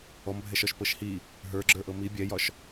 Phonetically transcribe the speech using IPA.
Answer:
ɔ m bʱ ɛ ʃ ɒ ʃ p ɤ ʃ h i | ɦ ə˞ ɡ͡ǁ ə˞ ʔ ɤ m i bʲ ɛ j ɒ ʃ

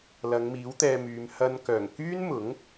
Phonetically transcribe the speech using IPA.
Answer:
l ɐ˨˧ ŋ m iː˨˥ w t̪ ɛː˧ m yː˨˧ m h ɐ˧ n k œː˨˩ ŋ k yː˥ n m ʊ˨˥ ŋ

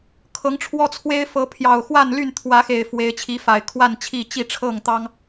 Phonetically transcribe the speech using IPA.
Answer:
kʰ ɤ˨˦ ŋ ʈ͡ʂʰ w ɔ˦ t͡sʰ w e˦ ɪ̯ f ɤ˨˦ pʰ j ɑ˨˩ ʊ̯ x w a˥˨ n l y˥˨ n t̪ʰ w ä˨˦ x e˨˩ ɪ̯ f w e˨˦ ɪ̯ t͡ɕʰ i˨˦ f a˨˩ ɪ̯ kʰ w a˥˨ n t͡ɕʰ i˥˨ t͡ɕ i˥˨ ʈ͡ʂʰ ɤ˥˨ ŋ t̪ ɑ˦ ŋ

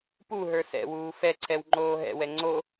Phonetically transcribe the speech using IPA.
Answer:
p u ɦ ə˞ s ɛ̰ w uː f ɛ ǀʰ ɛ w ŋ͡ǃ oː ɦ ɛ̰ w ɛ ŋ͡ǀ o

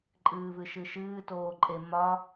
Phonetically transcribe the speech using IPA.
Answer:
ǃʼ ɨː v ɨ ʃ ɨ ʃ ɨː t oː ǃʼ e m ɒ

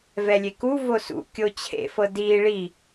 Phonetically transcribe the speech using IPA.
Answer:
v ɛ lʲ e k u v o s ṵ kʲ o t͡ɕʰ ḛ f ɤ d iː ɭ i

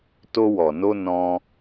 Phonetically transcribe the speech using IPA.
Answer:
t o˧ w ɔ˨ n o˧ n ɔ̃˧

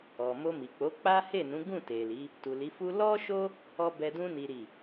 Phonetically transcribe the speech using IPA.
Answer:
ɔ˨ m o˧ m i˨ k͡p o˨˦ k͡p a˦ h e˦˨ n ũ˨˦ ɡ ũ˦˨ t e˨ l i˨˦ | t u˨ l i˨˦ f u˦ l ɔ˦ ʃ o˦ | ɔ˦ b ɛ˧ d ũ˦ n i˦ ɾ i˦˨

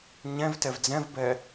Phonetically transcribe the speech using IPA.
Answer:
ɲ ɛ̃ v t ɛ v d͡z ɛ̃ v b ɛ

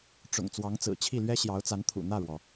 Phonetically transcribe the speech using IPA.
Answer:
ʈ͡ʂ ʊ̰˨˩ ŋ t͡s w ɑ˧˥ ŋ t͡s ɹ̩˨˩ t͡ɕʰ i˥˩ l ɥ ɛ˥ ɕ j ɑ˧˥ ʊ̯ t͡s a˧˥ n t̪ʰ ṵ˨˩ n̪ ä˥˩ ɻ w ɔ˩

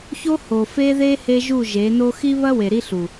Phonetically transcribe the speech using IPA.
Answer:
ç o˦ h o˨ f e˦ ð e˦ h e˦ ʒ u˦˨ ʒ e˨˦ n o˦ x i˦ β ɐ˦ w e˨ ɾ i˦ ɬ u˨

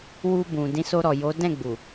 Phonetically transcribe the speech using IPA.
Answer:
w u˧ b ũ˨ d ĩ˨˦ s o˧ ɾ ɔ˨ j o˨˦ d ɛ̃˦˨ ɡ͡b u˨

